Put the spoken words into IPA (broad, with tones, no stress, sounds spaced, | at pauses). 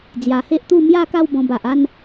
d͡z j a˨˩ h e˦ ʔ t̪ u˥˧ m j a˥˧ k a˥˧ w b ɔ̃˧ b a˨ ʔ a˥˧ n